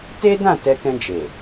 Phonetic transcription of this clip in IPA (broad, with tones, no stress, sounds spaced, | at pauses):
t e˦ d ã˦˨ t ɛ˧ k ɛ̃˧ d͡ʒ e˨